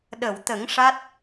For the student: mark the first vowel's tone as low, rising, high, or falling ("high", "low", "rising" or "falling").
low